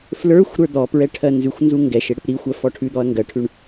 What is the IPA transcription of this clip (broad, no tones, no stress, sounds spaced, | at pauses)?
f l ə˞ xʷ ɾ ə˞ d̪ ɔ p ɹ ɛ ʈʰ ɜ n z ʉ xʷ n z u ŋ ɡ ɛ ʃ ɪ ɽ ɪ p ɾ i xʷ ɜ f ɔ ʈʰ ʉ d̪ ɔ ɐ̯ ŋ ɡ ɜ ʈʰ ʉ ɳ